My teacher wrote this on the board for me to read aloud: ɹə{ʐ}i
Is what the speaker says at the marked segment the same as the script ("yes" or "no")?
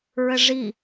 yes